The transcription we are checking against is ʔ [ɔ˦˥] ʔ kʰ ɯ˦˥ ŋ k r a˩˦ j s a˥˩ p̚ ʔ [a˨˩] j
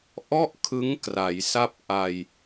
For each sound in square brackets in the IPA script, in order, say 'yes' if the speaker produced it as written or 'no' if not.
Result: no, no

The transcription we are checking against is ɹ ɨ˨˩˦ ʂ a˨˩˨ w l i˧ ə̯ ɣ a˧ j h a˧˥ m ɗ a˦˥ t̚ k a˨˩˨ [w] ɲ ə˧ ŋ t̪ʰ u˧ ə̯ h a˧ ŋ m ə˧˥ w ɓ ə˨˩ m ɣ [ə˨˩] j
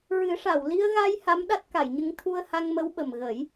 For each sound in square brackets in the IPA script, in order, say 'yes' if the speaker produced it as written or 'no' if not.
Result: no, no

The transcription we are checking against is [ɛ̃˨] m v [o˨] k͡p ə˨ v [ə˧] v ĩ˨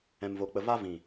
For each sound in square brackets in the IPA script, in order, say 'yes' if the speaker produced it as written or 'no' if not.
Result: yes, yes, no

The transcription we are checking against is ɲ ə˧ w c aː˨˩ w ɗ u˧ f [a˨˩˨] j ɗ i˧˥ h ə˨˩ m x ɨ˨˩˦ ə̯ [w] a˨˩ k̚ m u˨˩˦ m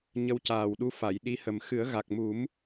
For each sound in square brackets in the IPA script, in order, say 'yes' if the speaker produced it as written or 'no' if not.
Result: yes, no

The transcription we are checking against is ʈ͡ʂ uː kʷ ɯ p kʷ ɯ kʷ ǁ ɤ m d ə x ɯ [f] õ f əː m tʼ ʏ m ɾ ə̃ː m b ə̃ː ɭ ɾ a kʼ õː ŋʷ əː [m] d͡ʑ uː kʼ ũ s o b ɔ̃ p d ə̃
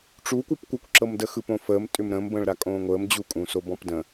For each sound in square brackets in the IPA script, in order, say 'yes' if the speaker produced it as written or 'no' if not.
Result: no, yes

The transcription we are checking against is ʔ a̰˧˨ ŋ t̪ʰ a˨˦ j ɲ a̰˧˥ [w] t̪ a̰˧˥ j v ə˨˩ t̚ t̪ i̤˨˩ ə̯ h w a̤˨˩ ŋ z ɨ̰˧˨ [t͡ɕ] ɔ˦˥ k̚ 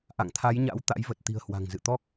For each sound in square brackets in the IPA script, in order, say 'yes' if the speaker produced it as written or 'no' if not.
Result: yes, no

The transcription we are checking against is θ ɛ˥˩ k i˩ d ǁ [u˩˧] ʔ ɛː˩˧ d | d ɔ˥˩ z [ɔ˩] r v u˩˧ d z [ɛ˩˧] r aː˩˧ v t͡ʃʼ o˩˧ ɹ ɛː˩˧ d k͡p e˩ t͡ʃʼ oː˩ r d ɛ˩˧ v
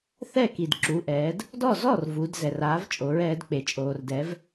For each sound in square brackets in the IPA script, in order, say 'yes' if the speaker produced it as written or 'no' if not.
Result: yes, no, no

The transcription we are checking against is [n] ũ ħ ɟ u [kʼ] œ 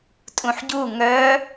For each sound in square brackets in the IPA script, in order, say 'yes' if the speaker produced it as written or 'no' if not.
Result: no, no

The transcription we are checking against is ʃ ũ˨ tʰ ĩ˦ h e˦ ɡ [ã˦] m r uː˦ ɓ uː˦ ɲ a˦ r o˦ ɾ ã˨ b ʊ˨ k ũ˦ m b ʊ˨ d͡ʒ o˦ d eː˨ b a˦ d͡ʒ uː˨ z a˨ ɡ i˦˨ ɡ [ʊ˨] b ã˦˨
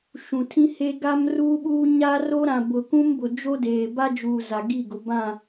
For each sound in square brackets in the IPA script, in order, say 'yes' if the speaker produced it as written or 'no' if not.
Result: no, yes

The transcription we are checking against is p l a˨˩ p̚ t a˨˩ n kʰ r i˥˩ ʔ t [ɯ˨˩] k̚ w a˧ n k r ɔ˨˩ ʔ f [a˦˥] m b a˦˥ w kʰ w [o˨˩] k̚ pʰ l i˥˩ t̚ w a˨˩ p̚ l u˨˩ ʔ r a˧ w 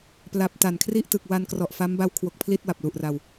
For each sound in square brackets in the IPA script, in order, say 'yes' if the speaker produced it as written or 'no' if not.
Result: yes, yes, yes

